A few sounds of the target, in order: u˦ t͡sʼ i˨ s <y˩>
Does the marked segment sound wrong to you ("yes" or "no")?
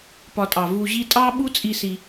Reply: yes